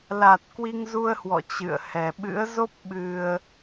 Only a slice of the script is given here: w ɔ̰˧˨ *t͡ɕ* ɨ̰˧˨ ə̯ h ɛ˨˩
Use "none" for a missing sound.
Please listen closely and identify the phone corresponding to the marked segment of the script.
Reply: t͡ɕ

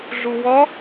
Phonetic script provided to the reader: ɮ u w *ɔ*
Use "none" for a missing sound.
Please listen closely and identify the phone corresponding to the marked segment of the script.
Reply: ɔ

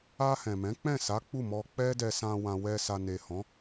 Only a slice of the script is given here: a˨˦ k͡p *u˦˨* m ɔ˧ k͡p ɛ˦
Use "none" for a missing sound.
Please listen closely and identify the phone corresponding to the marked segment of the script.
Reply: u˦˨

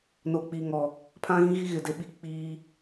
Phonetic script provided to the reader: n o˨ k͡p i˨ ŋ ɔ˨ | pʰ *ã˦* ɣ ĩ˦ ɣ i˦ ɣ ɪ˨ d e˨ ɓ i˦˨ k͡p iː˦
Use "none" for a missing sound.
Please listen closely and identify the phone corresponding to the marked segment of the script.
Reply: ã˦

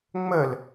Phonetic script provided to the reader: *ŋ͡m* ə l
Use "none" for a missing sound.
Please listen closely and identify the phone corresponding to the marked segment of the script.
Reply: ŋ͡m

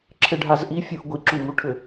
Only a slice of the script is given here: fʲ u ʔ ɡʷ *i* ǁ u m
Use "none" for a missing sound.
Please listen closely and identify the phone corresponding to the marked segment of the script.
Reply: i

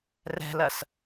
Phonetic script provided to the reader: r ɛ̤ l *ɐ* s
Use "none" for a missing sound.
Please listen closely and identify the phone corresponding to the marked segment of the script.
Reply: ɐ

